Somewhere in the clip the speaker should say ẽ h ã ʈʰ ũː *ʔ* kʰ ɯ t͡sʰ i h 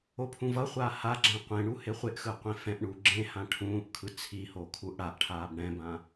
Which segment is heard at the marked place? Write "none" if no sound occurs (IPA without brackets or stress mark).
ʔ